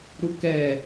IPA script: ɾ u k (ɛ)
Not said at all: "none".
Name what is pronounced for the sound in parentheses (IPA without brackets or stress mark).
ɛ